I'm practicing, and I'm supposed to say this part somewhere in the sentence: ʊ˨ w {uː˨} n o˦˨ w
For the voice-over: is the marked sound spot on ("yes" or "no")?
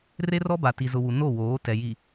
no